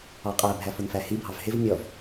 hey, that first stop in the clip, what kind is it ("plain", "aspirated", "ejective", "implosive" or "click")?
ejective